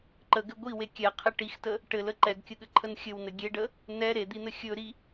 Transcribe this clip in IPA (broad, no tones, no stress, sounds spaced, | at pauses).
ǃ ə ɡ ɘ ɡʷ i w e kʲ ɛ qʰ ɘ ʈ i x t ə | ʈ ɘ l ə ǃ ɛ ɡ kʲ ə ɠ ɘ ǃʰ ə n xʲ ɘ w n ɘ ɡʲ e ɖ ə | n ɛ ɾ e d̪ i n̪ ɘ xʲ ɵ ɾ i